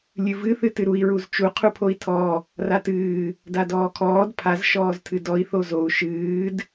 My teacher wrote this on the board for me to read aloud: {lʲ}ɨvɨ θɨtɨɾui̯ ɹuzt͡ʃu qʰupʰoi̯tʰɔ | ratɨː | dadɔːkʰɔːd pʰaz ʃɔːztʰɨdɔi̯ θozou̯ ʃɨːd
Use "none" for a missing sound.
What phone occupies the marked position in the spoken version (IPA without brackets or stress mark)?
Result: lʲ